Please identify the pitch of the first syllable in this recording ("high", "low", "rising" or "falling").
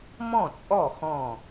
falling